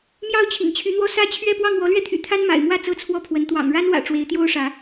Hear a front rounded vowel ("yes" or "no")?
yes